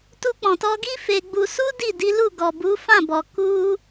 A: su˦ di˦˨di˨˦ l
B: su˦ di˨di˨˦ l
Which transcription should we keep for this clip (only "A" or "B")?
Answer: A